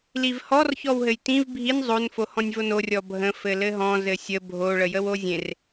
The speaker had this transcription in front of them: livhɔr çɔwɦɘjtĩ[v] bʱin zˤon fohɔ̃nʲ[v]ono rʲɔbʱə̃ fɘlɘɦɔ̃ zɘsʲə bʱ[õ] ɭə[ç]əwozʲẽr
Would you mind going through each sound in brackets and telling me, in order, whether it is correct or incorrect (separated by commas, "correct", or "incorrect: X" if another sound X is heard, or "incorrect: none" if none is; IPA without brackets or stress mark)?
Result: correct, correct, incorrect: o, incorrect: j